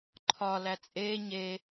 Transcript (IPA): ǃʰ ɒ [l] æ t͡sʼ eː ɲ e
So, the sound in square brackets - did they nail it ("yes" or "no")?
yes